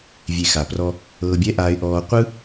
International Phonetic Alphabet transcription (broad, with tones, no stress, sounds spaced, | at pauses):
vʲ e˨ x a˨ p r ɔ˧ | ɤː˧ bʲ ɛ˦ ʔ aː˧ ɪ̯ ʔ ɔː˧ qʷ ɯ˦